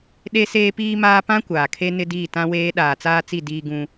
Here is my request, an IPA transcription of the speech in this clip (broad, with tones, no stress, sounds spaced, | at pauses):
ɗ e˦ s eː˦ p iː˦ m aː˦ p ã˦ kʷ aː˨ kʰ e˦ n ɪ˦ d iː˦˨ t ã˦ w eː˦ ɗ aː˨ t͡s aː˦ t͡s i˦˨ d iː˦ ɡ ũ˦